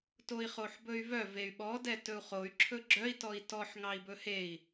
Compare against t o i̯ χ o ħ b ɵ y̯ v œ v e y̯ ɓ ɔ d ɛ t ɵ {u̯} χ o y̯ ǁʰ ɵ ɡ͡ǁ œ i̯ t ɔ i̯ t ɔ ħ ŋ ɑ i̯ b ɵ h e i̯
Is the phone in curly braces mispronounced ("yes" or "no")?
no